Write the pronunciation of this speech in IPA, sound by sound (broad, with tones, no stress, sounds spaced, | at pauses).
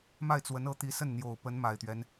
m a˥˩ ɪ̯ t͡s w ə˧˥ n ɤ˧˥ t̪ i˧˥ s ə˥˩ n n̪ j o˨˩ ʊ̯ p ə˧˥ n m a˨˩ ɪ̯ t̪ ɥ ɛ˦ n